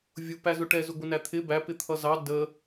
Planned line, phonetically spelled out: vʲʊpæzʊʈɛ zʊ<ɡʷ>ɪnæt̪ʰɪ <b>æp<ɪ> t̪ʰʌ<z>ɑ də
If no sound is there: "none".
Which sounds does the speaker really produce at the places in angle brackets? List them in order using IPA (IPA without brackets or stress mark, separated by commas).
ɡʷ, b, ɪ, z